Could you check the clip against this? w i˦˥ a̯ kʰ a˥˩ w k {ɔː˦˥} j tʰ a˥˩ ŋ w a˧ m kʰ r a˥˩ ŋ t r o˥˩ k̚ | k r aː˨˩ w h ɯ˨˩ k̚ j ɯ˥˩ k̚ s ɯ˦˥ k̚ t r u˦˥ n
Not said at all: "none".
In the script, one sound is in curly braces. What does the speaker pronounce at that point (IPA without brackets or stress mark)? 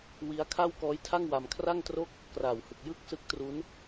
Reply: ɔː˦˥